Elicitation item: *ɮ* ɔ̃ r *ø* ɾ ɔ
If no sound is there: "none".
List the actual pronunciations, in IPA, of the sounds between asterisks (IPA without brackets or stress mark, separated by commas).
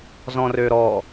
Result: z, ø